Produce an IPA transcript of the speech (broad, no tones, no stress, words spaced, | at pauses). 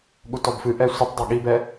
ɠutɔbfɨʔɛ sʷɨtˤdˤʌ ɠibɛ